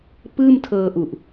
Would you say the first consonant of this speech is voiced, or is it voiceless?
voiceless